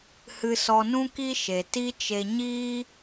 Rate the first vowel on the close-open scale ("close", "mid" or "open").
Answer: close